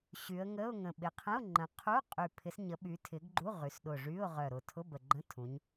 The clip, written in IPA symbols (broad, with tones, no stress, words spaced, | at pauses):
ɕy˩˧ə̯ŋə˧˥˧ʊ̯ŋə̃˨˩ ɓɪ˩˧qʰə̃˧˥˧ʊ̯ ŋ͡ǃə̃˩˧qʰu˧˥˧qʼy˨˩ pʰɪ˩˧sɲə˩˧ɓy˩˧tʰɪ˩˧ɡ ɡ͡ǃu˧˥˧ʁy˩˧sɗʊ˨˩ ʐy˧˥˧ʊ̯ʁœ˨˩ɾʊ˨˩ tʰʊ˧˥˧bə˨˩ɡ͡ǃə̃˧˥˧ tʰũ˩˧ɲ